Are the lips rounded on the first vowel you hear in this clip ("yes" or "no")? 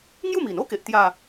yes